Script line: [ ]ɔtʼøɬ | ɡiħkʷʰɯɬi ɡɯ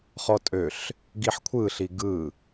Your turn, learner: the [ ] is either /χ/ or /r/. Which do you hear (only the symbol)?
χ